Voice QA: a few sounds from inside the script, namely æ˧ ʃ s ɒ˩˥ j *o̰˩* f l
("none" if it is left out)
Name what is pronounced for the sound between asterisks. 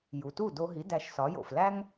o̰˩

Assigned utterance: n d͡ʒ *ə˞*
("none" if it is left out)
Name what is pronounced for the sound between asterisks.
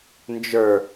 ə˞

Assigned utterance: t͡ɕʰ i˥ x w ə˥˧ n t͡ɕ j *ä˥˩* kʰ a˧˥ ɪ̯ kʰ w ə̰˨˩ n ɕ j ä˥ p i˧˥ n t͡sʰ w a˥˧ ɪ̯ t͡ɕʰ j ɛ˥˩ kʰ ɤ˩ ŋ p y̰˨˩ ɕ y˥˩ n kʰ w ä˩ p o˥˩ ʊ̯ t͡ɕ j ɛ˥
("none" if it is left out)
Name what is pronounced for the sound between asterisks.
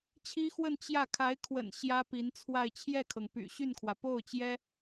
ä˥˩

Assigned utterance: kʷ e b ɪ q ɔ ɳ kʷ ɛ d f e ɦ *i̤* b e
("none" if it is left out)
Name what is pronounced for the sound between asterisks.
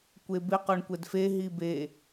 i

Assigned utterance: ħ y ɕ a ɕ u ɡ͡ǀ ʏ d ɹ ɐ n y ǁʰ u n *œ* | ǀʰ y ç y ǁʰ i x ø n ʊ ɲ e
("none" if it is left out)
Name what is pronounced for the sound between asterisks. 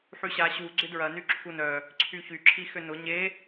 œ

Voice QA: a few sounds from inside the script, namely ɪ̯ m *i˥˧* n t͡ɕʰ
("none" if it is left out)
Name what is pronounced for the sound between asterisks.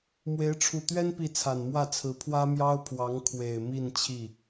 i˥˧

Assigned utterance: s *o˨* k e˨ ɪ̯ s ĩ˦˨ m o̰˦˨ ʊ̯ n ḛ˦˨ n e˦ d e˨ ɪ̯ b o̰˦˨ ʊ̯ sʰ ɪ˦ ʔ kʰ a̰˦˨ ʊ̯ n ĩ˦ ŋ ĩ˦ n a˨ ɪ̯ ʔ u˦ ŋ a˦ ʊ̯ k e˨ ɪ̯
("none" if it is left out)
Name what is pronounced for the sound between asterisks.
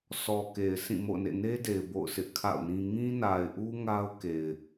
ɔ˨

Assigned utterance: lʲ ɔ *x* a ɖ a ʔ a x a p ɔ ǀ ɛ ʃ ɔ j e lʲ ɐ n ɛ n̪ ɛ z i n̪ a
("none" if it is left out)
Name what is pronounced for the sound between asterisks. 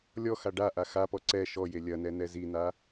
x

